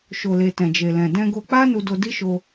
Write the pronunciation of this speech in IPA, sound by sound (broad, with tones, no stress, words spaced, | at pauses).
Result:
ʃo˨le˨ tɛ̃˨d͡ʒe˨lɛ̃˨ dɛ̃˧ ɡo˧k͡pa˦ nu˧do˧ di˦ʃo˧